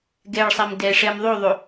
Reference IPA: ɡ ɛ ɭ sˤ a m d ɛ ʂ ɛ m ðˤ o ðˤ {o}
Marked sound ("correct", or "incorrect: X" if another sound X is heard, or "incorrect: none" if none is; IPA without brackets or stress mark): correct